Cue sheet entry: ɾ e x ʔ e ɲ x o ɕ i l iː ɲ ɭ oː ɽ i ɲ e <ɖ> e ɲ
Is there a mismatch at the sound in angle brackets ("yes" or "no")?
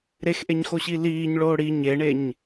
yes